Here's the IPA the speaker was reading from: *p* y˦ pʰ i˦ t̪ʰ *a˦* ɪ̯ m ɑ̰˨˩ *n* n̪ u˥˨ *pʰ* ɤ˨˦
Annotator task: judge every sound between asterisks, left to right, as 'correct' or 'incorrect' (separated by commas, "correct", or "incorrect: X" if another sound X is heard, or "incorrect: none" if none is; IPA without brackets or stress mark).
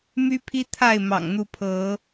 incorrect: m, incorrect: a˥˨, incorrect: ŋ, correct